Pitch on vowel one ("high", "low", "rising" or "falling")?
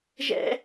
high